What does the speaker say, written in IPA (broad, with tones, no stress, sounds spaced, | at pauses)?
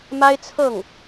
m a˥ ɪ̯ t͡sʰ ɤ˥˩ ŋ